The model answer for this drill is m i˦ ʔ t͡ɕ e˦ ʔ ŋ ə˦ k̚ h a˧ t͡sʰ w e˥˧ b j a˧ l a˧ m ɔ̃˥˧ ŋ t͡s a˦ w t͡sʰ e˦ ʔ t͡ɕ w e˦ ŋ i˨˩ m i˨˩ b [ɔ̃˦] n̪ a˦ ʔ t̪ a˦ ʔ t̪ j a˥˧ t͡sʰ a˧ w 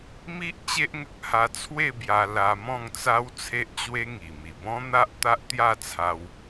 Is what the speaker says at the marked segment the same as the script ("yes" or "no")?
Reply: yes